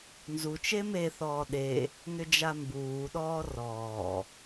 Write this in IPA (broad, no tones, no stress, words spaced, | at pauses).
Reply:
nzut͡ʃe meθɔː ɗe | nʏd͡ʒambuːɗɔː rɔː